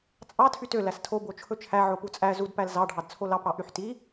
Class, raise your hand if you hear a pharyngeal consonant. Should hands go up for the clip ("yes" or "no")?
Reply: yes